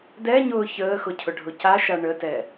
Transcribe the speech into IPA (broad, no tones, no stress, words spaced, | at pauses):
dɛɲʊː çəːxʊ cʰʊɖʱʊcaʃa ɳətɛ